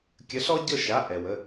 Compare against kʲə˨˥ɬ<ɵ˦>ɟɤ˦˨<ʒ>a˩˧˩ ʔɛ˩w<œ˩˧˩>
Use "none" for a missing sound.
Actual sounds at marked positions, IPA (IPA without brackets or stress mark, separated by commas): ɔ˦, ʃ, ə˩˧˩